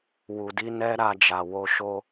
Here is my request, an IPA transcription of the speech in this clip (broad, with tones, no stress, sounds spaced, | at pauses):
w u˨ d i˧ n ɛ˦ ɾ a˧ d͡ʒ a˨ w o˧ ʃ o˧